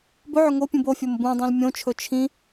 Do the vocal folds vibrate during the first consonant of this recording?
yes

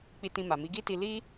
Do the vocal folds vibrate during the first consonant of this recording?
no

